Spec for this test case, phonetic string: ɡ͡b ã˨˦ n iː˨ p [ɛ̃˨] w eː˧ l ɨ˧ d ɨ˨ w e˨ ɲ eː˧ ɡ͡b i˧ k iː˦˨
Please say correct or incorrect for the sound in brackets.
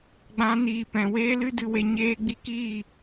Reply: correct